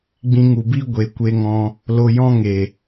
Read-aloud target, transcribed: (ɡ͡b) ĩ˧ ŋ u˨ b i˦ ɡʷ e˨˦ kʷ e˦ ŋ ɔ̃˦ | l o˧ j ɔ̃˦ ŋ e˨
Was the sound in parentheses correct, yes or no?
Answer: yes